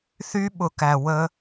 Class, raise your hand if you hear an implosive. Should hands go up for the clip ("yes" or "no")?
yes